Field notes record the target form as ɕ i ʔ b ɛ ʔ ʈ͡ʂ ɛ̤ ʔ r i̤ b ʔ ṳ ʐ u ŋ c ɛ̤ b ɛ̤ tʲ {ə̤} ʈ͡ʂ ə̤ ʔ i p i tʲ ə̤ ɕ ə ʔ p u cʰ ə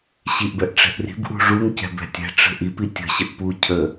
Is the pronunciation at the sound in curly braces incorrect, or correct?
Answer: incorrect